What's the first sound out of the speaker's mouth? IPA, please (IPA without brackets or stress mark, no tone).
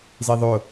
z